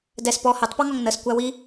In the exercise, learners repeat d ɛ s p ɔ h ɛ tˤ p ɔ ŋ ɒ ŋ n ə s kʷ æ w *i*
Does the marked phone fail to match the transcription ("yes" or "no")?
no